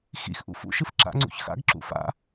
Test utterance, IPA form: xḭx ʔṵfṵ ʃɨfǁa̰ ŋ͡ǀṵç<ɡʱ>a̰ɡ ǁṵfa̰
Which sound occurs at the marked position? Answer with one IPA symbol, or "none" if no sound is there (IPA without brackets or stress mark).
x